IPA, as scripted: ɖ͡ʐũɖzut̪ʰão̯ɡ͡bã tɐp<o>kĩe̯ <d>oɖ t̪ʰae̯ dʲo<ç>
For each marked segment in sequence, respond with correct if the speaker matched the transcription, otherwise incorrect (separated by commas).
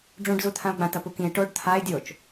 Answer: incorrect, incorrect, incorrect